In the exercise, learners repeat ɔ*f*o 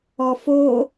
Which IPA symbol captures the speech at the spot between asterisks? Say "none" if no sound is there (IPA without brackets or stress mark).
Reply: f